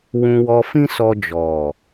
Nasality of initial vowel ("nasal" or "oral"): nasal